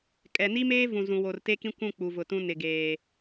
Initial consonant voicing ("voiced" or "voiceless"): voiceless